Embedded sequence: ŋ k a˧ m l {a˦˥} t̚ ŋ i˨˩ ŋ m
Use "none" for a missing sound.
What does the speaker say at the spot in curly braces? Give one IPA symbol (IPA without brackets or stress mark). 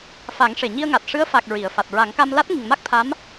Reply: a˦˥